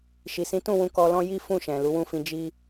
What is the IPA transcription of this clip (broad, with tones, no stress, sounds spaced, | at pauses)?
ʃ i˨ s ĩ˨˦ t ũ˦˨ w ũ˧ k ɔ˧ l ɔ̃˦ j i˦ f ũ˦˨ ʃ ɛ̃˨ l u˨˦ w ũ˦˨ f ĩ˧ d͡ʒ i˦